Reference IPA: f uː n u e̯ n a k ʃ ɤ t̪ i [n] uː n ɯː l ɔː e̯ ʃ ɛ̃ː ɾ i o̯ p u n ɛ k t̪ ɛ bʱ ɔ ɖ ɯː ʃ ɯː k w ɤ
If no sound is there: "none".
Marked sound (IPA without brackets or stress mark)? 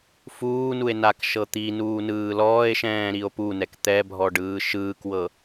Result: n